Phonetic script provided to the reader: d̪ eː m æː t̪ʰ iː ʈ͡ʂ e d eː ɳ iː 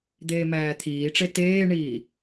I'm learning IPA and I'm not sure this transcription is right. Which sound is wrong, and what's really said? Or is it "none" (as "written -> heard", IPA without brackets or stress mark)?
d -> t